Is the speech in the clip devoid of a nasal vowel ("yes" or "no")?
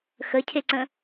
no